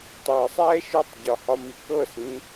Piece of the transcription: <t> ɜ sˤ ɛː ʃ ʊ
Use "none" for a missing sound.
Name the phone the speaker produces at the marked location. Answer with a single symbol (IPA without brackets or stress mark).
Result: tˤ